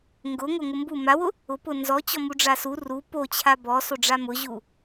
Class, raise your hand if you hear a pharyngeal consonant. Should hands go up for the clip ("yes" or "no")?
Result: no